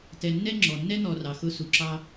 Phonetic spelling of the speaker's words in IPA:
t ɛ˨ nː ɛ˥ ŋ͡ǁ ɔ˩ nː ɛ˥ n̪ ɔ˨ r ɑ˩ x ʊ˦ s u˩ ǁ ɑ˥

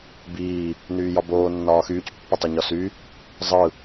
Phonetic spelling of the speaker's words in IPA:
b iː | n yː j ɒ b oː nː ɒː x yː c pː ʌ tˤ ɯ ɲ ɒ s y | zˤ ɯ

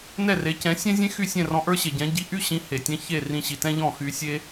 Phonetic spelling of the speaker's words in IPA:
n ɛ˥˩ r e˩˥ c ɛ̃˩˥ sʲ ɛ̃˥ zʲ ẽ˥ x y˥˩ sʲ ɛ̃˥˩ r ɔ̃˧ ʔ ə˞˥ ɕ e˩ ɟ ɛ̃˩˥ ɟ i˩˥ ʔ y˥ ɕ ĩ˩˥ h e˩ tʲ ɛ̃˥ ç e˥˩ r ĩ˧ ɕ i˩ t ɛ̃˥ ʎ ɔ̃˥˩ x y˧ sʲ e˥

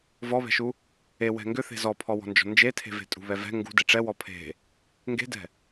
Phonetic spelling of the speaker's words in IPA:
v ɔ β ɛ̤ ʃ u | e w ɛ̤ ŋ ɡ ʏ θ e̤ z ɔ pʰ ɔ w ɔ̤ n d͡ʒ ɔ̤ n d͡ʒ e tʰ e̤ v e̤ tʼ ṳ β ɛ v ɛ̤ ŋ ɡ ṳ d e ʈ͡ʂ ɛ w ɔ pʰ e̤ | ŋ ɡ e̤ d ɛ̤

